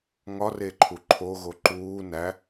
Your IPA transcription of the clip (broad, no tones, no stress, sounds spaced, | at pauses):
ŋ ɒ r e ǃʰ u ǃʰ o ɣ o ǃ uː n æ